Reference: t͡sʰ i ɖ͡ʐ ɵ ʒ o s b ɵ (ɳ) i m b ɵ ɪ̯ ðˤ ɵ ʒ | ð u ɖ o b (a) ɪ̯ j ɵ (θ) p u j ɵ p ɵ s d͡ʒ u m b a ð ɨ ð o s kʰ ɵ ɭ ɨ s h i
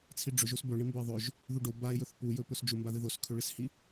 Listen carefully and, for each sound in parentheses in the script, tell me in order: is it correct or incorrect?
correct, correct, correct

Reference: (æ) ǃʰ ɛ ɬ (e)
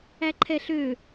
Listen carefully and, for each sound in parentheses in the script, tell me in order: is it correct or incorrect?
correct, incorrect

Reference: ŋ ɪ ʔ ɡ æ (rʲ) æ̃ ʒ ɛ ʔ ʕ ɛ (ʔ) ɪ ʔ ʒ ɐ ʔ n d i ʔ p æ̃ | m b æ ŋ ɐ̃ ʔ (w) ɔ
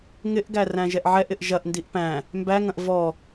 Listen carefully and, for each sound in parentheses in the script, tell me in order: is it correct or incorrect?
incorrect, correct, incorrect

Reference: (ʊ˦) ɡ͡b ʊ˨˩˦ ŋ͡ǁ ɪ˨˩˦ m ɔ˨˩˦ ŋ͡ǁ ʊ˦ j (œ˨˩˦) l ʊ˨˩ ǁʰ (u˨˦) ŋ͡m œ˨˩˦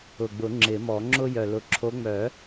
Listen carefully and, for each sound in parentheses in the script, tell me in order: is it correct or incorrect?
incorrect, incorrect, incorrect

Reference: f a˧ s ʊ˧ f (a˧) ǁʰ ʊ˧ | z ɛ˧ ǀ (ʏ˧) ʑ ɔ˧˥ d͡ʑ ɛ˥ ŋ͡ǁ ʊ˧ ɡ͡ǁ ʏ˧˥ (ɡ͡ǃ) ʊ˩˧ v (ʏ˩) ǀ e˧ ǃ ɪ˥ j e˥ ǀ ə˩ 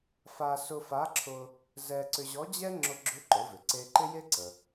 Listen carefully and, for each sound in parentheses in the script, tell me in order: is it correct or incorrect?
incorrect, correct, incorrect, correct

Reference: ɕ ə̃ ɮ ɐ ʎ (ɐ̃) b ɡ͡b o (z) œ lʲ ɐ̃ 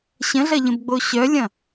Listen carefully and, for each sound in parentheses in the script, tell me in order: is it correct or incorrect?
incorrect, incorrect

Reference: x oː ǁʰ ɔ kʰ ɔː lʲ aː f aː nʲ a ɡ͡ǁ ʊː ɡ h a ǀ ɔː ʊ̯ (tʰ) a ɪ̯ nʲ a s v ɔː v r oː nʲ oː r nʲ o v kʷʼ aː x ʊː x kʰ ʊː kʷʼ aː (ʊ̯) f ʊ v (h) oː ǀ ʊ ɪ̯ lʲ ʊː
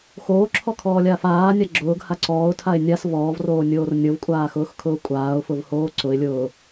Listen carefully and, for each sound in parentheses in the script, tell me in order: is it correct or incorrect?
correct, correct, correct

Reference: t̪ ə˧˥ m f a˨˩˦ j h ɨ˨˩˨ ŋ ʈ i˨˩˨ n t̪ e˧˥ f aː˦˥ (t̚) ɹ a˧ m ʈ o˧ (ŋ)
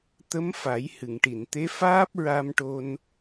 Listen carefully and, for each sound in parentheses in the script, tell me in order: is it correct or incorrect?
incorrect, incorrect

